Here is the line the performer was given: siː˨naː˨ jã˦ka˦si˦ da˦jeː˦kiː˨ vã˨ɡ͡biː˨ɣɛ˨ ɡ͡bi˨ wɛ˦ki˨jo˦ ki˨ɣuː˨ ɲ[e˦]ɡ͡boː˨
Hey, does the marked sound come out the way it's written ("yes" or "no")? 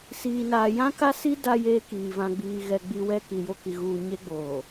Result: yes